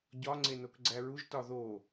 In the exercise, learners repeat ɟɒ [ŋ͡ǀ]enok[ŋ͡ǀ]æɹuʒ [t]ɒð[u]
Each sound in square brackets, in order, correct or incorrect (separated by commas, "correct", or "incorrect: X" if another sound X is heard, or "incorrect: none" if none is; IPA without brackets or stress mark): correct, incorrect: ɡ͡ǀ, correct, incorrect: o